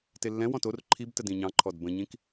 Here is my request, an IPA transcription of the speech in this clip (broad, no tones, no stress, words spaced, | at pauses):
telːɛ̃wɔ̃t or ǃʰibtəd ĩɲɑ̃ǃʰɔd bə̃ɲĩk